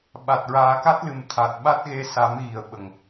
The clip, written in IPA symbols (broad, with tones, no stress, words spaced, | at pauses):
ɓa˨˩t̚ɹaː˨˩˦ka˦˥t̚lɨ˨˩m t̪ʰa˨˩t̚ ɓa˦˥t̚ɣe˧˥ sa˨˩˦mɣi˨˩˨ə̯ ɓə˨˩ŋ